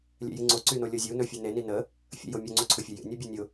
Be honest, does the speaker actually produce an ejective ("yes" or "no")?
no